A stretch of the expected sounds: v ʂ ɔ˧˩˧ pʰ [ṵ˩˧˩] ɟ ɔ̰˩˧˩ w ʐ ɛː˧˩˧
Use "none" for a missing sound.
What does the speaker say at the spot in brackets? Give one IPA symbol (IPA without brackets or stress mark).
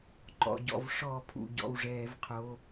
ṵ˩˧˩